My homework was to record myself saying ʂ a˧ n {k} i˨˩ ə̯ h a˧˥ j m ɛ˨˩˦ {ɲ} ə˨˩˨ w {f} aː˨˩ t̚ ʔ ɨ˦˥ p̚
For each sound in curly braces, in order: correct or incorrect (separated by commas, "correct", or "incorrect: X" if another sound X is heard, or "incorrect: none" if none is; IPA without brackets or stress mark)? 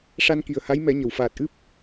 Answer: correct, correct, correct